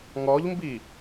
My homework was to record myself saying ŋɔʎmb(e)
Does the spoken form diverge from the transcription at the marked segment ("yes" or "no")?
yes